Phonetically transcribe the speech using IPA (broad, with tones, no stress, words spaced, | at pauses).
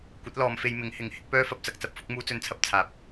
kʷɐ˨˥t̚ lɔː˨˧mfe˧j mɪ˨˥ŋhɪ˨˥ŋhɪ˥k̚ pœː˥fɐ˧p̚t͡sɐ˧k̚ t͡sɐ˨p̚fʊ˨˥k̚ muː˥t͡sɵ˥nt͡sʰɐ˥p̚ t͡sʰaː˨˥p̚